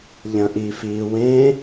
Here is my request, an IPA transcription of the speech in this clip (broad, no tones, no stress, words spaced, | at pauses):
ʎɐ̃ʔifiːwẽ